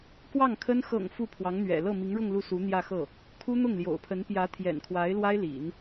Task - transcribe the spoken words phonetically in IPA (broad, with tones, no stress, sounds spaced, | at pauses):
k w ɑ˥˩ ŋ kʰ ə˥ n x ɤ̰˨˩ ŋ f u˥˩ pʰ w ɑ˧˥ ŋ n̪ ɥ ɛ̰˨˩ l ɤ˥˩ m i˧˥ ŋ ɻ ʊ˥˧ ŋ l u˥˩ s u˧˥ n̪ j ä˥˧ x ɤ˥˩ | kʰ u˥ n̪ ʊ˥˩ ŋ l j o̰˨˩ ʊ̯ pʰ ə˧˥ n p j ä˧˥ t̪ʰ j ɛ̰˨˩ n kʰ w a˧˥ ɪ̯ l w a˥ ɪ̯ l ḭ˨˩˦ n